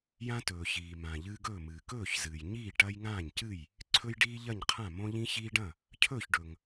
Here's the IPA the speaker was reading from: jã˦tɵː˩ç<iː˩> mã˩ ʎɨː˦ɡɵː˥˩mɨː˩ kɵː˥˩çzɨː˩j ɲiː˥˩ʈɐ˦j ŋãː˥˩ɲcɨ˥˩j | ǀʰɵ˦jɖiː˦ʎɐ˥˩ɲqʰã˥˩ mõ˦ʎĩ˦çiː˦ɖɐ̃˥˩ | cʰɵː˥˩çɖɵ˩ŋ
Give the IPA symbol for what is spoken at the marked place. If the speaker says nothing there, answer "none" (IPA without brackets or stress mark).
iː˩